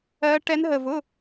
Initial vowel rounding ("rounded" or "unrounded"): unrounded